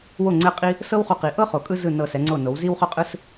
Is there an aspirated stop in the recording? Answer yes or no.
no